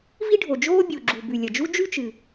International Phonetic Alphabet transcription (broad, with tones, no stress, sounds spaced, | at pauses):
v i˥ ɖʱ o˩ d͡ʒ oː˥ bʲ u˩ ɡ͡ǁ u˩ b ʉ˩ lʲ ɐ˩ d͡ʒ u˥ d͡ʒ ʉ˥ t͡ʃ ɨ˩